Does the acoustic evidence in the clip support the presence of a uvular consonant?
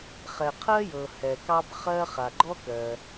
yes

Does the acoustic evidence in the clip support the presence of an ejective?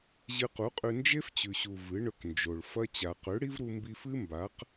yes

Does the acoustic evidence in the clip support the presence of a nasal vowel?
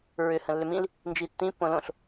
yes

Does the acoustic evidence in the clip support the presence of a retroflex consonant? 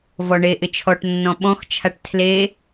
yes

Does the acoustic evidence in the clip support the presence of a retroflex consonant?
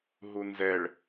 yes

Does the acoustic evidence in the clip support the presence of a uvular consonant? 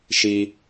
no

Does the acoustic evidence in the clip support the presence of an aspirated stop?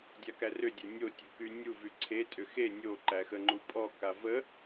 yes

